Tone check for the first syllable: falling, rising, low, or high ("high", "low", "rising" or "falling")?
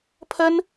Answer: high